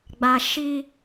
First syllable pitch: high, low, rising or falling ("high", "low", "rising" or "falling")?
low